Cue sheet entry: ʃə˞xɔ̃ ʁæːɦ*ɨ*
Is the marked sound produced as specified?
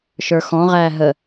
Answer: no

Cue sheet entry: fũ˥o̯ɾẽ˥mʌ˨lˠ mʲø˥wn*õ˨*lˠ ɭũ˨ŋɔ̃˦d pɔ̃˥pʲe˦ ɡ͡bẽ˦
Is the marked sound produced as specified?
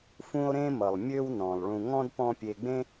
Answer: no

